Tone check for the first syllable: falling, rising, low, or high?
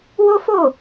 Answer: high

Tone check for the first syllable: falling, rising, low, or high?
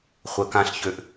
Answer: low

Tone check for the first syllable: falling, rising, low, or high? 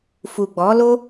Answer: low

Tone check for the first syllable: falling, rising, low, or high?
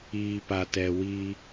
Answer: low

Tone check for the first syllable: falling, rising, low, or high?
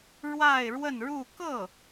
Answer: falling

